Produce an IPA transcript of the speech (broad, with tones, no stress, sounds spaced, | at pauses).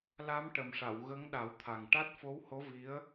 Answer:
l a˧˥ m ʈ ə˨˩ m ʂ a˨˩˨ w ɣ ə˧˥ ŋ ɗ a˨˩˦ w t̪ʰ a˨˩ ŋ ʈ a˦˥ t̚ f o˧˥ w h o˧˥ v i˧˥ ə̯